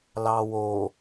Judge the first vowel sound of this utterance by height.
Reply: low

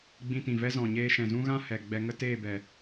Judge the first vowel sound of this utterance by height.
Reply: high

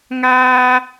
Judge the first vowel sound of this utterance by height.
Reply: low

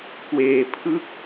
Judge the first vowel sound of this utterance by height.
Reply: mid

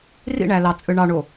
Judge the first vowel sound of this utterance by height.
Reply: high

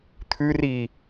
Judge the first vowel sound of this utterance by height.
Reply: high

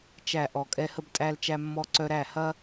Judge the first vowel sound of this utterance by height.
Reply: low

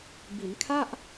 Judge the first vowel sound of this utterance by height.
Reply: high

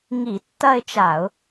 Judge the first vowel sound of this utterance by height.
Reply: high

